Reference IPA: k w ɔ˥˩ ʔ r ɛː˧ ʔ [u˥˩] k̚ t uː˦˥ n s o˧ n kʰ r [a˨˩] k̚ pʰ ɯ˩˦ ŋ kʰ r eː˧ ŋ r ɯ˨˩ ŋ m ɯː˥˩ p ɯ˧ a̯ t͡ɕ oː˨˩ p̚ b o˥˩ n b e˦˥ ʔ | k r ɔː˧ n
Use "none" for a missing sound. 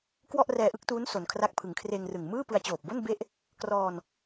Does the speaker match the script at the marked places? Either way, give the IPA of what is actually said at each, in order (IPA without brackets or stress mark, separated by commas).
ɯ˥˩, a˥˩